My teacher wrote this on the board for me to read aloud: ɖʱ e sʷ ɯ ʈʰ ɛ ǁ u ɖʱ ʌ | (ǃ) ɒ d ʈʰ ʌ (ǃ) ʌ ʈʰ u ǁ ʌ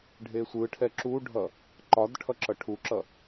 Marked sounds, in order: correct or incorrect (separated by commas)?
correct, incorrect